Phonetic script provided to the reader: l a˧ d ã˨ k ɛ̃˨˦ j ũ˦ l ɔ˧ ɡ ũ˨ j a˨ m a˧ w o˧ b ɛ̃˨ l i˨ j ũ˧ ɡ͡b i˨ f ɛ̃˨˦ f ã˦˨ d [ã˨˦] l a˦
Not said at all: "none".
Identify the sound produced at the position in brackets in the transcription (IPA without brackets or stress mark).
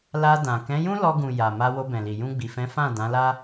ã˨˦